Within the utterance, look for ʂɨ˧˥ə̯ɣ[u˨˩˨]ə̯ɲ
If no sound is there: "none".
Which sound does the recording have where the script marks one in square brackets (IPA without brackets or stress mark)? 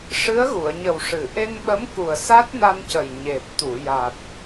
u˨˩˨